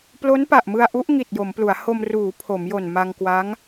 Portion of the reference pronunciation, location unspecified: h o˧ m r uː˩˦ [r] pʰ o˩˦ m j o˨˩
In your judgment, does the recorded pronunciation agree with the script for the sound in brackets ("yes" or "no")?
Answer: no